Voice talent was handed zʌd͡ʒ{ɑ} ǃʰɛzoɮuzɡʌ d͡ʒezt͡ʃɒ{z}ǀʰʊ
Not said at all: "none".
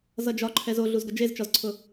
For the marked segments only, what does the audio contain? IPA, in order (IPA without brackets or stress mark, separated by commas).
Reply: ɒ, z